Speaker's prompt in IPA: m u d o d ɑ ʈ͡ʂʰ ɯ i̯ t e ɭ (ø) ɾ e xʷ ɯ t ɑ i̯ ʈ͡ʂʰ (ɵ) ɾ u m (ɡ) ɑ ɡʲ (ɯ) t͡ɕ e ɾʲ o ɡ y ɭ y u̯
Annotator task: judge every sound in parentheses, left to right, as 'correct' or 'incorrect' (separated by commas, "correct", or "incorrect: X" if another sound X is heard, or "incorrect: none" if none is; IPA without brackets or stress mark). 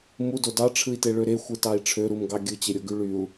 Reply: correct, incorrect: ø, correct, correct